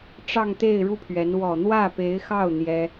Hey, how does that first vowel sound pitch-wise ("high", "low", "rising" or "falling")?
falling